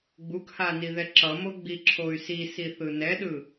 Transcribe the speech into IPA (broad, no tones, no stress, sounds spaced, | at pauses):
ɡ͡b u k h a n i ð ɛ ǁ ʌ m o ɡ͡b i ǁʰ o y̯ s i s i θ ɯ n ɛ ɗ ɯ